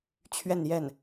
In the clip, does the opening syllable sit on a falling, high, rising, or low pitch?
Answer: falling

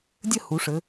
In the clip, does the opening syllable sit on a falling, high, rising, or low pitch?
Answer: falling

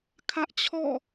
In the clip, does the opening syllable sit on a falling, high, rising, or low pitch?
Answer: high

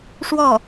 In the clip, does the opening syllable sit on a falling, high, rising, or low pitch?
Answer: falling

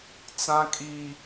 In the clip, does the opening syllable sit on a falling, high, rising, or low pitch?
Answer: high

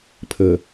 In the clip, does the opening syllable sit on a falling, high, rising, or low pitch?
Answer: low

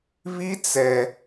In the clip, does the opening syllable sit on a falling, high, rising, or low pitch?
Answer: high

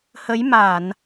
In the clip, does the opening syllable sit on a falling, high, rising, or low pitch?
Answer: rising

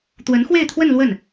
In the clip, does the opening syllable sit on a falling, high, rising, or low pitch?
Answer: rising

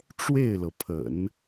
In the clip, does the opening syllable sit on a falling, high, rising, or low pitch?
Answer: falling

